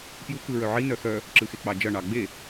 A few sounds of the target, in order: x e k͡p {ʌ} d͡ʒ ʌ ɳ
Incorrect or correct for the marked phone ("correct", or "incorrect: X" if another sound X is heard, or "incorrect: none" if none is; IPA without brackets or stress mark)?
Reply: incorrect: ɑ